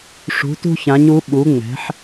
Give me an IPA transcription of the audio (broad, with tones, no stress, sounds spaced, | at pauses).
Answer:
ʂ ṳ˩˧ t ṳ˧ ç ã˩˧ ɲ u˩˧ ɓ u˩˧ ŋ͡m ɛ̤˩˧ ħ